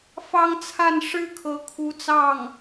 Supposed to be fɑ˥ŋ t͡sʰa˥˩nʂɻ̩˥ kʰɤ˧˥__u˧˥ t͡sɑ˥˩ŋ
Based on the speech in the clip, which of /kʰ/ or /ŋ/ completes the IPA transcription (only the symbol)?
kʰ